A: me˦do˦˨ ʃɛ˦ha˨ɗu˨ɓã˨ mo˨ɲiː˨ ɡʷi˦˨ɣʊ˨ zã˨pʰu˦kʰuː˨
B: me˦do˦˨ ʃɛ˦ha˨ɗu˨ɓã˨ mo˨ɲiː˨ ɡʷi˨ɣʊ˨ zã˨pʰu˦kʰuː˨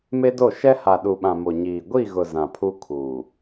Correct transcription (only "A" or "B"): A